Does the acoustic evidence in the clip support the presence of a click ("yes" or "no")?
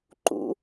yes